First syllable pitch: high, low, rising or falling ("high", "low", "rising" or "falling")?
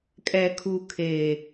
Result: low